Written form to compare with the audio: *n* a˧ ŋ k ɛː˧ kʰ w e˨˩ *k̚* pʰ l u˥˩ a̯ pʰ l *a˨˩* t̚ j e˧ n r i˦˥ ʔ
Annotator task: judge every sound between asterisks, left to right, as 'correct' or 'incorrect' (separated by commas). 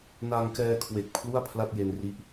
correct, correct, incorrect